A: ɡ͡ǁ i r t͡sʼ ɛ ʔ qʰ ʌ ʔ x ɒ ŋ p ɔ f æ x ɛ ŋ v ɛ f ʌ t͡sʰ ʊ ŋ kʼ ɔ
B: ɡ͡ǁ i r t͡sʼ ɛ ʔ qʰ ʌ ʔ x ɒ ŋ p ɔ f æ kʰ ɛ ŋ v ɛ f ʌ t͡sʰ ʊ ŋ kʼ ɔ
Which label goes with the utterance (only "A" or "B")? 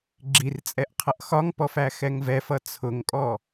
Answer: A